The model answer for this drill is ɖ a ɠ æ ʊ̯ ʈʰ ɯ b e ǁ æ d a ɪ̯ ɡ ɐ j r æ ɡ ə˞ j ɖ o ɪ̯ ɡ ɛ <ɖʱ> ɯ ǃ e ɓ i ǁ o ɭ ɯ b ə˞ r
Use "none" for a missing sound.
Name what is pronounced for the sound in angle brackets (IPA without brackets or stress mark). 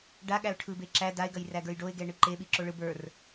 ɳ